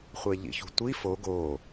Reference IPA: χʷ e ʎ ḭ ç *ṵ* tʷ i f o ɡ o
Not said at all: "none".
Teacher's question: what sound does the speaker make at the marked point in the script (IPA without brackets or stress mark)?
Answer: ṳ